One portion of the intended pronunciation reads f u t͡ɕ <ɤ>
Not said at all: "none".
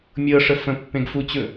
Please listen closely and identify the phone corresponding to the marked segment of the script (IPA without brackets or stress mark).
ɵ